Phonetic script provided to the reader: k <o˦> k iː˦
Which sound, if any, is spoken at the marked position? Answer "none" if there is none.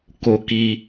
o˦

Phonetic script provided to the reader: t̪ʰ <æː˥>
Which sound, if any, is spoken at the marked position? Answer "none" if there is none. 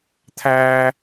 æː˥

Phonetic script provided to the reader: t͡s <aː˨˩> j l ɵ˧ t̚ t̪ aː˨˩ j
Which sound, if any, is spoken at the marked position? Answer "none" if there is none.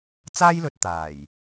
aː˥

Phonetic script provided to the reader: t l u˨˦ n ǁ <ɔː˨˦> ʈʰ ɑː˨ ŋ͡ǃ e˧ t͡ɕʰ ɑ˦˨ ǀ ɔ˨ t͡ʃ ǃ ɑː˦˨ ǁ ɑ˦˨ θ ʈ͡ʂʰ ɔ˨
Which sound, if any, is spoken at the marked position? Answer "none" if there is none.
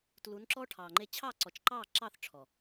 ɔː˦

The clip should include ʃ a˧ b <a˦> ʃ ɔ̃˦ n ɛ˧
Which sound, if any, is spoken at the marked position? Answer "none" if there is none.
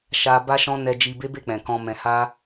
a˦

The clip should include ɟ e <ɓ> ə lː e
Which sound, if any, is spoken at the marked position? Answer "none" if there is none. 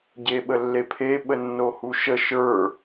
ɓ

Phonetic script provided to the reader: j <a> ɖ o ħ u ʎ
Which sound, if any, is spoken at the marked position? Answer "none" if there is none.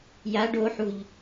a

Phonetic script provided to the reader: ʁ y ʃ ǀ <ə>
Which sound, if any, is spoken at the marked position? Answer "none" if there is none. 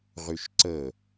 ə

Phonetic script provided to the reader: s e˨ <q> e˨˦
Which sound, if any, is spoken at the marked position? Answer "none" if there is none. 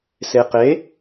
q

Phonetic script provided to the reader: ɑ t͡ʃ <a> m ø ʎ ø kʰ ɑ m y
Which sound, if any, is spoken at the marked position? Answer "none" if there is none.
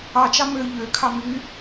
ɑ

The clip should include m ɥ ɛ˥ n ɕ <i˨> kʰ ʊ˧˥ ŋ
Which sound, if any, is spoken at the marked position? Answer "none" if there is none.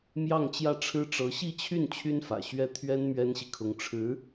i˨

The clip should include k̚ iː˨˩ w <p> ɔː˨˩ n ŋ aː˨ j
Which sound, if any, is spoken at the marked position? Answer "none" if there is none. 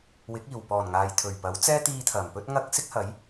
p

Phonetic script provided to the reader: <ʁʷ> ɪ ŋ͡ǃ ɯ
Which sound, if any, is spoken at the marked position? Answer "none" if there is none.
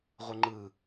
ʁʷ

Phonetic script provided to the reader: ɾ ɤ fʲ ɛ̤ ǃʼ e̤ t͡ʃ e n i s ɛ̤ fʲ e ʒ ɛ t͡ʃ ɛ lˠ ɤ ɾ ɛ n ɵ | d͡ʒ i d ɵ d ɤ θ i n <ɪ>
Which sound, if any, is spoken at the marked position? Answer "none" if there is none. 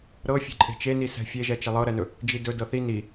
i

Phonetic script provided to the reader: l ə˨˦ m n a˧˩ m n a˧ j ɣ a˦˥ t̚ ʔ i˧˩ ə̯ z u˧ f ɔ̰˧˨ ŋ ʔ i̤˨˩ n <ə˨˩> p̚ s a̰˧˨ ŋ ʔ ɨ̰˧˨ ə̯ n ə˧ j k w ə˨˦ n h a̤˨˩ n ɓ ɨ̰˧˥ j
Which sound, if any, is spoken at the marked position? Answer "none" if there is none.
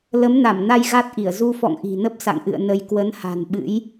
ə˦˥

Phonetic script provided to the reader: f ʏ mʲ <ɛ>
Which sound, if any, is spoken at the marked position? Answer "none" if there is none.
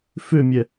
ɛ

